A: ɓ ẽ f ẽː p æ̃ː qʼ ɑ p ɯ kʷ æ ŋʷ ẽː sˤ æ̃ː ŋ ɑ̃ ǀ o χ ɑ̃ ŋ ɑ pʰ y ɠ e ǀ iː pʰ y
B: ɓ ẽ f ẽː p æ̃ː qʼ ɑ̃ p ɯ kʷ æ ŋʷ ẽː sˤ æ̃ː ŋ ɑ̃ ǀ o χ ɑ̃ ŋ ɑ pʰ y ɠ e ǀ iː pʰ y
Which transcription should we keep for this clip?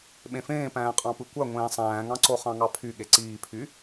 B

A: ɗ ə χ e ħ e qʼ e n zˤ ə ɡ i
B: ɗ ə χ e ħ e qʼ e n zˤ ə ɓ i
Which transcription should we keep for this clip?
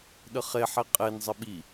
B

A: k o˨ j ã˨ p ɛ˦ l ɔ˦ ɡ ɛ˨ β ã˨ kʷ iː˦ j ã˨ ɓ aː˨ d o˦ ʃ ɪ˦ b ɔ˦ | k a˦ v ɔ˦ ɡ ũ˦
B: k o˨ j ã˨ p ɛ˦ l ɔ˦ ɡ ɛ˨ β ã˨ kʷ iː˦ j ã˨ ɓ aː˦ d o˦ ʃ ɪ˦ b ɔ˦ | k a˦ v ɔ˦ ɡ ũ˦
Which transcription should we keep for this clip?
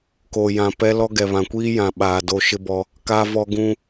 A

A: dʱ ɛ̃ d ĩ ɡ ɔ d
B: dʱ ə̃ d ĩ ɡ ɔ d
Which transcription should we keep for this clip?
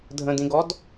B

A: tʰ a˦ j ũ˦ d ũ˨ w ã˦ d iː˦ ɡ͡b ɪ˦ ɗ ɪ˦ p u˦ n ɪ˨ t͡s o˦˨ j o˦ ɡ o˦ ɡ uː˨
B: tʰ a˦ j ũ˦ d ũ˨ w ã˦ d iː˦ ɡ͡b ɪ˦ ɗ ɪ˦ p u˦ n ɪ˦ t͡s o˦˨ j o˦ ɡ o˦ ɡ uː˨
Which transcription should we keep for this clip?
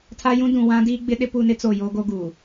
B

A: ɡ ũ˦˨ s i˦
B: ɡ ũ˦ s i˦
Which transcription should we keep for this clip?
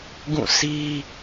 A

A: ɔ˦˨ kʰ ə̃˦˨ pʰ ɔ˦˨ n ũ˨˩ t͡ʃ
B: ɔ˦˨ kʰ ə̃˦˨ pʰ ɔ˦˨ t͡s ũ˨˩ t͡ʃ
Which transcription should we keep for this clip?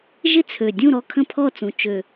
B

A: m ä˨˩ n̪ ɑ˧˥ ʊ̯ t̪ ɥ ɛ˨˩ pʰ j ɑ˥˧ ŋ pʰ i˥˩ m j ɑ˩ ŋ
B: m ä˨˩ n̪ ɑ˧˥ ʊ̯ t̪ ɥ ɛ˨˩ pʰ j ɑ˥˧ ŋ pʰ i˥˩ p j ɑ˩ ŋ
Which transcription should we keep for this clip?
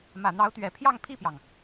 B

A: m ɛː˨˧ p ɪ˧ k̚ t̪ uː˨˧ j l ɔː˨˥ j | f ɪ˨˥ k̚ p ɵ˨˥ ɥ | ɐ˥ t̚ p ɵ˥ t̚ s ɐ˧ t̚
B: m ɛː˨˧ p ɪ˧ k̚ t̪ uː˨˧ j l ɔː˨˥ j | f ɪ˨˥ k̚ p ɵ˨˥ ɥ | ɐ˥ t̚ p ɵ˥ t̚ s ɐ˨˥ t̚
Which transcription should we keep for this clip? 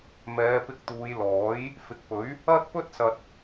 A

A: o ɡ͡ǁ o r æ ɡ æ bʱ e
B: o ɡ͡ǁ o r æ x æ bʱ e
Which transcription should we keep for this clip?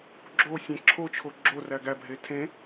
A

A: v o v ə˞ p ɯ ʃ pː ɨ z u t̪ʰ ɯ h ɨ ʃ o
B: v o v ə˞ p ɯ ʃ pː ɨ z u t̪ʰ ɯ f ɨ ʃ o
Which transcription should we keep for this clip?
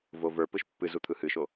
A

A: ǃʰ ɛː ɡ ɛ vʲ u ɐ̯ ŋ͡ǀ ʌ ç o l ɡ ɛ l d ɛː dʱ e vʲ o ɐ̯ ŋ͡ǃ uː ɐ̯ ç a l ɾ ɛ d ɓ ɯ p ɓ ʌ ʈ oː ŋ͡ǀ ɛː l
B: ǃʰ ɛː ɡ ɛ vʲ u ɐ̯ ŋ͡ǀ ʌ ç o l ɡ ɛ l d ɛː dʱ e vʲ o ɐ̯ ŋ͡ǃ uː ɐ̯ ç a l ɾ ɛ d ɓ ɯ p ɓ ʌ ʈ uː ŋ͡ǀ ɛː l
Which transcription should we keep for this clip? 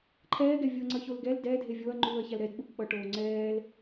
A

